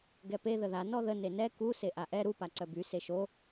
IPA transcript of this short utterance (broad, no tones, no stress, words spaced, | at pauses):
ɡɛpe ðəða nɔðə nenɛ ku seʔaʔɛ ɾu paǀœby seʃo